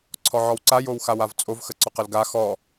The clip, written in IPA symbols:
ǀʰ ɔ ʕ ɔ w ǀ a j o w x a w a v t͡sʼ o v x ə ǀ ɔ q ə l ɡ a x ɔ

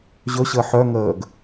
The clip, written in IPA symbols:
ʑ ɵ ɕ əː ħ œ ŋ əː ɡ

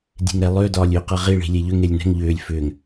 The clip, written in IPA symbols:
dʲ e̤ ŋ ɾ ɛ lˠ ʏː d ɒː lʲ ʏː q ɤ ʁ i ɭ i̤ lʲ e ʎ ʏ ŋ e lʲ n ɛ̤ ŋ ʎ ʏː lʲ f ʏː ŋ

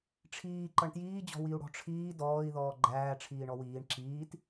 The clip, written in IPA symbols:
ʈ͡ʂʰ iː ǃ ʌ ɳ t j iː d͡ʑ ɔ̤ w i u̯ ɽ ɔ̤ ʈ͡ʂʰ iː d ɔː i̯ ð ɔː ɡ͡ǃ æː ʈ͡ʂʰ iː ɳ ɔ w iː ɳ ǁ iː t

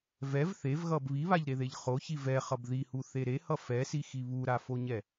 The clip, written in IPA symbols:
v ɛ v θ e v ɣ ʌ b β i β a ʎ ɾ e ð e ʎ χ o ç i v ɛ χ ʌ b ð i h u θ e ɾ e h ʌ f ɛ s i x i β u ɾ a f o ɲ ɛ

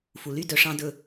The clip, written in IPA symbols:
f u˨ l y˦˨ d œ˧ ʂ ɑ̃˦ d ɵ˦˨

